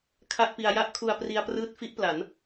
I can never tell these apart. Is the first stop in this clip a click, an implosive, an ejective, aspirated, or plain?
aspirated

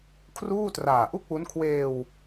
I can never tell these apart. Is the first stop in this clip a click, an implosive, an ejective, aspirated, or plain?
aspirated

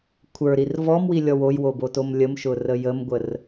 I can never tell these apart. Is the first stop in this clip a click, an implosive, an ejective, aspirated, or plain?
aspirated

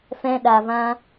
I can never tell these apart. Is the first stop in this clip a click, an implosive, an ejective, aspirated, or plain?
implosive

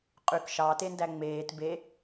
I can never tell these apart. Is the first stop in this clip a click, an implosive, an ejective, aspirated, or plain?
ejective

